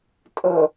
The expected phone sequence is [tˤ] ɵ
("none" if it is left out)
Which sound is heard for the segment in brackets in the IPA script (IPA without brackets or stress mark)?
tʼ